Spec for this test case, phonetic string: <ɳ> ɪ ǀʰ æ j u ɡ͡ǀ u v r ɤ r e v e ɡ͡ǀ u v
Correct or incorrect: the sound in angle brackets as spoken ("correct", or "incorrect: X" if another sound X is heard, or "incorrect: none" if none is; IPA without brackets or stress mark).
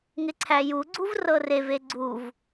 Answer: incorrect: ŋ